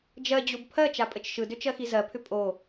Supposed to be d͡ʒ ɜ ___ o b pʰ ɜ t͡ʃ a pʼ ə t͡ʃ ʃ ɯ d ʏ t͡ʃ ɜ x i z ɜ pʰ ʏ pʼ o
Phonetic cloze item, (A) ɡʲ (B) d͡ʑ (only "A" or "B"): B